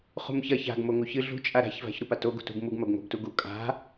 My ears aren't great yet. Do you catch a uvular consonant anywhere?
yes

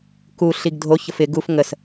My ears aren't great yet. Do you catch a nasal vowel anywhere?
no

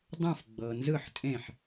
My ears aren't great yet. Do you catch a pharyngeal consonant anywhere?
yes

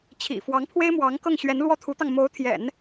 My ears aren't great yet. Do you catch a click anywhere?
no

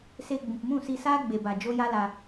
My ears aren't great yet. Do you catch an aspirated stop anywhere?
no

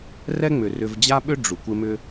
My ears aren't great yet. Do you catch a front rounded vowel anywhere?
yes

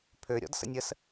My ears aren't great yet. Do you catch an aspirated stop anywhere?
yes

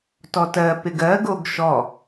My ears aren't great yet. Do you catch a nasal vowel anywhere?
no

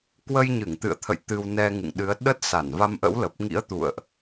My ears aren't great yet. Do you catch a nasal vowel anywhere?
no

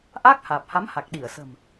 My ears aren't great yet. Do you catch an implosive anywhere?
yes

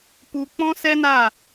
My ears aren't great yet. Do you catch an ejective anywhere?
no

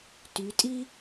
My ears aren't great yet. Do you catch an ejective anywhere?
yes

